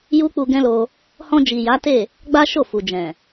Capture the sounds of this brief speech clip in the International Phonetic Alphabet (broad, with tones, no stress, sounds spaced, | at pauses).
j u˦ k͡p u˧ ɡ ɛ̃˦ l o˧ | h ɔ̃˧ d͡ʒ i˨ j a˨˦ t e˦˨ | ɡ͡b a˦ ʃ o˦˨ f u˨ d͡ʒ ɛ̃˨